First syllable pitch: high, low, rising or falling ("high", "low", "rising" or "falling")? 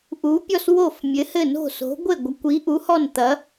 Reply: rising